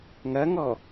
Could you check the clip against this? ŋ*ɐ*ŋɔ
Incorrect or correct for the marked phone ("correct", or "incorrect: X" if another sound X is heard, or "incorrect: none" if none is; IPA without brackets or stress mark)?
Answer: correct